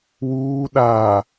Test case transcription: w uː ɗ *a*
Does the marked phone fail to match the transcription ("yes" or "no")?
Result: no